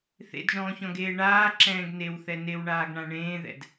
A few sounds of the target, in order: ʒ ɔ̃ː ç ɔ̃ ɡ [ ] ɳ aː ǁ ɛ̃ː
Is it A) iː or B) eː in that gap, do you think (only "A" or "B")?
B